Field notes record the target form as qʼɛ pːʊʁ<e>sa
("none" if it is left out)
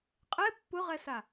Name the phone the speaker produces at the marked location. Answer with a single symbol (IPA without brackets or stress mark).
ɛ